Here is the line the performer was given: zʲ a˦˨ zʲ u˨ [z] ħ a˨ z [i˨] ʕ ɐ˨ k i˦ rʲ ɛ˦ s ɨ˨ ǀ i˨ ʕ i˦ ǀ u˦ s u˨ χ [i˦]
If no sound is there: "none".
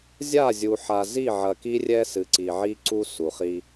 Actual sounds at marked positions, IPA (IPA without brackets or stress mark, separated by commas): none, i˦˨, i˦